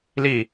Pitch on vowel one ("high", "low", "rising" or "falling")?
falling